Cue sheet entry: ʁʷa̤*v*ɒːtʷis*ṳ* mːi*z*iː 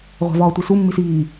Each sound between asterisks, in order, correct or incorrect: correct, incorrect: u, incorrect: s

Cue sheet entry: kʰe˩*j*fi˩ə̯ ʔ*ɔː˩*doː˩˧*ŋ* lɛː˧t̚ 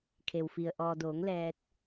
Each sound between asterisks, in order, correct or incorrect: incorrect: w, correct, correct

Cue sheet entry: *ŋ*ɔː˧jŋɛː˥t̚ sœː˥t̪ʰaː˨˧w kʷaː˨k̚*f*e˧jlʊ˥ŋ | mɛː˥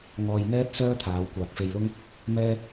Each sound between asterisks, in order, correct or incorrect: correct, correct

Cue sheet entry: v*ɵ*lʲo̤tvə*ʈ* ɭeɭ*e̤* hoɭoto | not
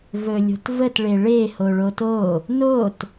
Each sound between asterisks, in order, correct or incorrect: correct, incorrect: t, incorrect: e

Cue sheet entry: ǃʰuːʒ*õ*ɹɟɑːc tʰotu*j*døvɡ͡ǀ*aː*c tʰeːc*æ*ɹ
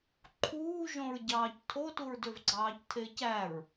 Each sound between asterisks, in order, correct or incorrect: correct, incorrect: ɹ, incorrect: ɑː, correct

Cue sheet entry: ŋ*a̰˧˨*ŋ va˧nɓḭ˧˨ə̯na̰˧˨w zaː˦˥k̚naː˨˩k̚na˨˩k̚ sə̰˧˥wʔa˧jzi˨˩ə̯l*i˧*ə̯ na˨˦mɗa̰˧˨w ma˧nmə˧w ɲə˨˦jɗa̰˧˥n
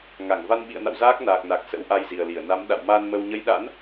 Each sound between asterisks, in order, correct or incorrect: incorrect: a˧˩, incorrect: i˧˩

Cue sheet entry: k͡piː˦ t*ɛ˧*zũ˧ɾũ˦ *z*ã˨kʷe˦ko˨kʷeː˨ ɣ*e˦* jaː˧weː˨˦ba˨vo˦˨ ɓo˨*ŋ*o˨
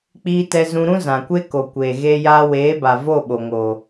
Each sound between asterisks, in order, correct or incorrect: correct, correct, incorrect: e˧, correct

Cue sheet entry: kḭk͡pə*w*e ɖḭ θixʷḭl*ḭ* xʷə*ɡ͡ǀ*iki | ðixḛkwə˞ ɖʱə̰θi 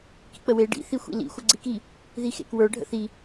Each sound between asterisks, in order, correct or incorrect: correct, correct, correct

